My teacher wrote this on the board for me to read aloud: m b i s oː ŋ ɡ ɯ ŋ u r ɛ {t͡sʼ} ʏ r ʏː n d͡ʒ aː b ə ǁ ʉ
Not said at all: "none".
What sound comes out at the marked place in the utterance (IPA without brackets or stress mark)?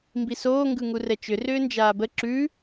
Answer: t͡ʃ